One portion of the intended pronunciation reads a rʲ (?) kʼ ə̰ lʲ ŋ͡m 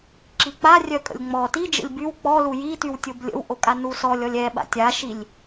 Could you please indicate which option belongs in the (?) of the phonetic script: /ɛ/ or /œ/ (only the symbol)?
œ